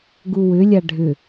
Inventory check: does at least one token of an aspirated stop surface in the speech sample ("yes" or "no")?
no